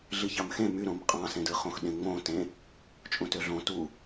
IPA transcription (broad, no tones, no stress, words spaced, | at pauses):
ɮiçɑmxẽ myɾõm qʼɑ̃sẽdɯ χõxɗẽŋ͡mõ tẽ | t͡ʃʼũtøɮõ tu